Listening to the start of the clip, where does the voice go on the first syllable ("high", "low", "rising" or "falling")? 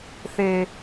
low